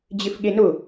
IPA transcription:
d͡ʑɪfɠenʊ

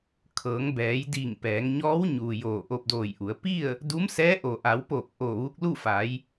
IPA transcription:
kʰɤː˩˧ŋbɛː˩˧jdiː˧˩ŋ pɛː˩˧ŋɲɔː˧˥wɲuː˩ joː˧˩ʔo˧p̚ doː˧˩jʔu˩˧ə̯ pi˥˨ə̯ | du˧˥msɛː˧˥ ʔo˩ʔa˩˧wpoː˧˩k̚ʔo˧˩ ʋu˧k̚lu˥˨fa˩˧j

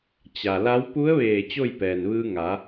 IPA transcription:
t͡ɕa˩la˧˥w pu˧˥ə̯ʋeː˧˩ t͡ɕo˥˨jpɛː˩nʋɯː˧ ŋa˩˧

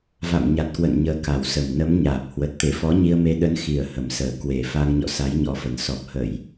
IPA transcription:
va̰˧˨mɲa˨˩t̚kwə̰˧˨n ɲəː˨˦ka˨˩wsə˨˩m nə˨˦mɲaː˨˩p̚hwə˨˩t̚ t̪e˧˩fɔ˨˦ɲi˧ə̯me˧ ɗə˨˦nxi˨˩ə̯hə˨˩msəː˨˩ kwe˨˩ fa˧ŋɲɔ̰˧˨ sa˨˦jɲɔ˨˦fə˨˩n sɔ˨˩p̚hə˧˩˨j

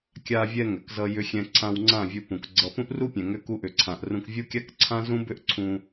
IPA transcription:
kʲa˧vʲɛ˧ ŋʏ˨kzʌ˧ jʏ˧xʲɛ̃˧ǀʰã˧wŋ͡ǀã˦˨ vʲu˧pũ˨kɡ͡ǀʌ˧ pũ˦ʔru˦pʲɛ̃˨ ŋʏ˧ku˧ʔʏ˨ǀʰã˨ʔ rũ˧kvʲu˦kʲa˦k ǀʰã˦zũ˦ bʏ˦ʔǀʰũ˧

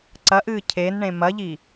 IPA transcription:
ǀɐʔɨː cʰenɳẽ mɐʎi

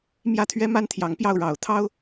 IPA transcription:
mjä˥˩t̪ʰɥɛ˥ ma˥nt̪ʰjɑ˧˥ŋpjɑ˥˩ʊ̯ ɻɑ˨˩ʊ̯t̪ʰɑ˥ʊ̯

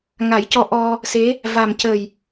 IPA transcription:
ŋa˨˩˦jcɔ˧ ʔɔ˧ | se˧˥ | va˨˩mcə˨˩j

